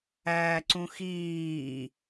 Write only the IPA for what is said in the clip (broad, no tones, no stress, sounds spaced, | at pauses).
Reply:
æː ǀ ũ x iː